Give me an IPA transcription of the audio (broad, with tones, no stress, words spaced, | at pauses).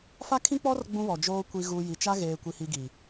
fa˦kʰĩ˦k͡pɔ˦r ɡ͡bũ˦βɔ˨d͡ʒoː˦ kʷi˨ɣu˨ ji˨t͡ʃa˦ ɣeː˨kʷi˨hi˨ ɡi˨